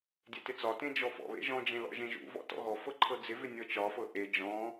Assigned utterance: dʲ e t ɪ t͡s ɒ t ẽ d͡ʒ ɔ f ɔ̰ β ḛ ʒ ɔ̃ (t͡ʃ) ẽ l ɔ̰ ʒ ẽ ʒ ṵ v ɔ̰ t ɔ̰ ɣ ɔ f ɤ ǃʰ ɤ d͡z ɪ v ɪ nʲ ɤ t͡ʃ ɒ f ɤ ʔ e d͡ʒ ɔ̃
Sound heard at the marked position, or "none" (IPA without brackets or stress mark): d͡ʒ